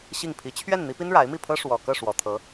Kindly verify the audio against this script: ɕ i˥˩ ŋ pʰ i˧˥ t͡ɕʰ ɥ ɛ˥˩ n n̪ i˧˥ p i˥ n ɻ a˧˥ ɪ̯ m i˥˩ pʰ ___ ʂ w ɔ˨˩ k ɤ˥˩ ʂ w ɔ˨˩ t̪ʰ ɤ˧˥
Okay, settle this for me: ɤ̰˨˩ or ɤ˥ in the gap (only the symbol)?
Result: ɤ˥